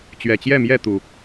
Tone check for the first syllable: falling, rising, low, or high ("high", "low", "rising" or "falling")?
low